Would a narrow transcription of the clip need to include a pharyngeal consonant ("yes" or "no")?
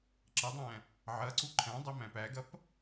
yes